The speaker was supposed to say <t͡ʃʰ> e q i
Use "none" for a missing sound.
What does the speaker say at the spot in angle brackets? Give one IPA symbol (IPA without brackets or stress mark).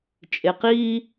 t͡ʃʼ